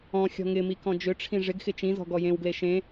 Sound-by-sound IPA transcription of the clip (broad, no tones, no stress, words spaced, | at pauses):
ɔ̃ xʲɔ̤ŋɪmi kɔ̃d͡ʒʏʈ͡ʂʰĩ ʐɪɡxɪ t͡ʃĩzɔ̤ ɡɔjẽwɡle ʃẽ